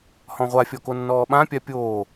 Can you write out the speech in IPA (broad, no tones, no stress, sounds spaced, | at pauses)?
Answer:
h ɔ̃ ʁʷ a fʲ ɔ k o nː ɔː ɓ ã pʲ a pʲ oː